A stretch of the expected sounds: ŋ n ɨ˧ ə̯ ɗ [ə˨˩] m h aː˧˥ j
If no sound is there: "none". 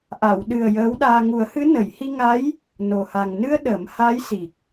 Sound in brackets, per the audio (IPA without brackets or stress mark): ə˨˩˦